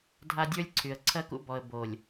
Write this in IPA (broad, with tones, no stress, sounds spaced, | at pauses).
dʱ a˦ dʲ ə˞˦ lʲ ǀʰ y˨ ə̯ ǀʰ ɜ˦ k ṵ˦ b ɔ˨ ə̯ b o˨ lʲ